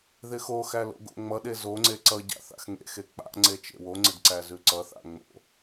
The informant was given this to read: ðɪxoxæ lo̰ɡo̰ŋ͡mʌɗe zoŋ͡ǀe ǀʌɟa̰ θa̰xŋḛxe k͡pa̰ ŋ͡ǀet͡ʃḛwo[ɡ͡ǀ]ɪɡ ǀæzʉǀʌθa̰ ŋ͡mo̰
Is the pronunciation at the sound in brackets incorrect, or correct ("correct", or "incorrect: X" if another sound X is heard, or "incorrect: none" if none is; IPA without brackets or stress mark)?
incorrect: ŋ͡ǀ